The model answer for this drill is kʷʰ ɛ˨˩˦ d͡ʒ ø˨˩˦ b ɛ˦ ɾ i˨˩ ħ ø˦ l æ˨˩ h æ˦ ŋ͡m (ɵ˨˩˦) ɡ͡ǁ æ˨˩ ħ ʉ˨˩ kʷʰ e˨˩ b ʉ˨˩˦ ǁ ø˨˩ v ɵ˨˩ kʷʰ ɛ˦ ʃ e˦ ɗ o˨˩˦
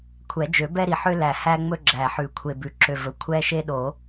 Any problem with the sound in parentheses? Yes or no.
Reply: yes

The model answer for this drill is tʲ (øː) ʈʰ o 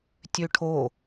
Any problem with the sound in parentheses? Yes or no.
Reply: yes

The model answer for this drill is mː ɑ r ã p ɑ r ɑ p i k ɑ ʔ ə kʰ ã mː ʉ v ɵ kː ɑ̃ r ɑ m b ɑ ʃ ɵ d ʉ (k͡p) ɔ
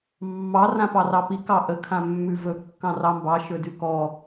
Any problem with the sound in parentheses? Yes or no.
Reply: yes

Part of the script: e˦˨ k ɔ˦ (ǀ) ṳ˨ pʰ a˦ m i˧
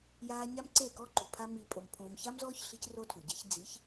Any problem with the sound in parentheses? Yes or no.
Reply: yes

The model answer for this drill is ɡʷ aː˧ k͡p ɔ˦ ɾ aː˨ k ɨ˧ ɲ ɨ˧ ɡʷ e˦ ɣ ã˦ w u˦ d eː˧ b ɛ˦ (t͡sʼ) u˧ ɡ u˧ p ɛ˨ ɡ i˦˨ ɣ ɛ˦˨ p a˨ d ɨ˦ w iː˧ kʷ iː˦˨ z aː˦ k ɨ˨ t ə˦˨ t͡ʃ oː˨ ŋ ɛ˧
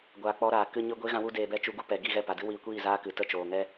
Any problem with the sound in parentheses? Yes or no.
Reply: yes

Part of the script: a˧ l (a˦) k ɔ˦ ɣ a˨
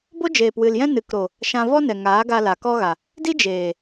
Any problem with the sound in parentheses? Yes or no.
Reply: yes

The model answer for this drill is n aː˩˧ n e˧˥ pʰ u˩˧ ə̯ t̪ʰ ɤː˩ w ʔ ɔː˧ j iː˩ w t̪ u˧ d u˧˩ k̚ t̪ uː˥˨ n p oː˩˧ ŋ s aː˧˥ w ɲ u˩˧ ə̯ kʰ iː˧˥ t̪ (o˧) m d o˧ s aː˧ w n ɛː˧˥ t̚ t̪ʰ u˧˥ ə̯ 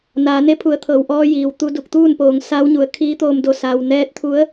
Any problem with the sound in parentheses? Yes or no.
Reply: yes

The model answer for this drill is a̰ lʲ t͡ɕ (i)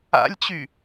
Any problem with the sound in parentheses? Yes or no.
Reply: yes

